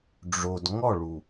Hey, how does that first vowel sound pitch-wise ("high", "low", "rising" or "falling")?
low